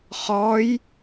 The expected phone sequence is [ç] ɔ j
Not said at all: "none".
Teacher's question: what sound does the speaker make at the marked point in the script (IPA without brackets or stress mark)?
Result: χ